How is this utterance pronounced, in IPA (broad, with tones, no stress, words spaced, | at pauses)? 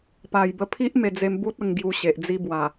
pa˨˩jbə˧pʰi˦ʔ me˧ d͡ze˧mbu˦t̚ ə˧ŋɡju˧ɕe˨ʔ d͡zi˦bwa˨˩